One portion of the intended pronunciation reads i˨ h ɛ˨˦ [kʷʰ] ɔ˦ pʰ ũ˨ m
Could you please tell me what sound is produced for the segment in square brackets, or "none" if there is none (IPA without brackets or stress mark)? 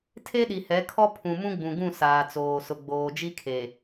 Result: kʰ